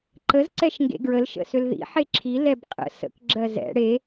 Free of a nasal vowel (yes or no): yes